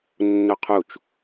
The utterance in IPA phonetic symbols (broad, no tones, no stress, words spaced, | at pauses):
nːoqʰut͡ʃ